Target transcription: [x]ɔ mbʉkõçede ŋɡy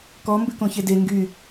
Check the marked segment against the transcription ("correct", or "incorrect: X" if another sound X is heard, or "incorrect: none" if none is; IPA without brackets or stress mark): incorrect: k